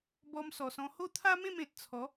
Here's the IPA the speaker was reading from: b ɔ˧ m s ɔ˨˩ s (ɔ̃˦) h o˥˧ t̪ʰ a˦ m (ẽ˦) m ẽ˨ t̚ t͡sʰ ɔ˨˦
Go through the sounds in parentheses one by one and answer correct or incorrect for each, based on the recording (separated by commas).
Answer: incorrect, incorrect